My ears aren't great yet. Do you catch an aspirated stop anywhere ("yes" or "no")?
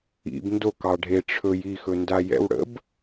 yes